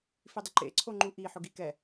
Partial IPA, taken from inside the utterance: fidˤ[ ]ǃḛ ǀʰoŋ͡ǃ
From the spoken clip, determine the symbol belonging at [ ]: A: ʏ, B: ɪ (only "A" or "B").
B